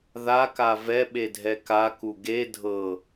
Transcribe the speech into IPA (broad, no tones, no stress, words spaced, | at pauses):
ðaka vɛɓedʱɛ kaku ɡe dʱɤ